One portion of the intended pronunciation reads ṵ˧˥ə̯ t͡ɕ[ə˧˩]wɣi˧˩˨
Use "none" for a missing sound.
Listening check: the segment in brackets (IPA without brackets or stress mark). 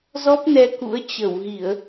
ə˧˩